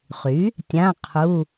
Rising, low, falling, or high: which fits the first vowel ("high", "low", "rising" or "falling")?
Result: rising